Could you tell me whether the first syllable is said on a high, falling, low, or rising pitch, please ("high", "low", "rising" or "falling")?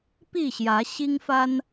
falling